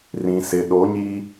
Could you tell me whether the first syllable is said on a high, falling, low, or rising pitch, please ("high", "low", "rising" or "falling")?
low